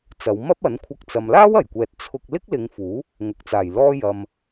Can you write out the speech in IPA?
t͡sɐ˨˧wmɐ˥p̚ɐ˨˥nkʷʰɐ˧k̚ t͡sɐ˨mlaː˥wɐ˨˩jkʷɛː˨t̚ t͡sʰʊ˧k̚ lɪ˥k̚lɪ˨˧ŋfuː˨˥ | ŋʊ˨˥k̚t͡saː˨˩jlɔː˥ jɐ˧m

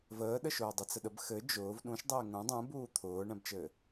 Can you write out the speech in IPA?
vəːɗəʃʊː dˤɘt͡səɗəb xɘ d͡ʒʊːv ɗũʃdˤɘː ŋũ dˤũbuː t̪ʰʊːɳɛ̃bt͡ʃɘː

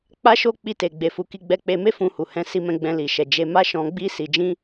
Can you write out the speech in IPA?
k͡pa˦ʃo˦ k͡pi˧te˨ ɡ͡be˧fu˧ ki˧ɡ͡bɛ˧k͡pe˧me˦ fũ˧hu˨hɛ̃˧ si˧mɛ̃˧ɡ͡bɛ̃˧ li˨ ʃɛ˨ d͡ʒe˧ma˦ ʃɔ̃˧ɡ͡bi˦ si˧d͡ʒĩ˦

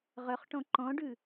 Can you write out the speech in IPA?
ʁœχʈɔ̃ ǃɔ̃ɖʉ

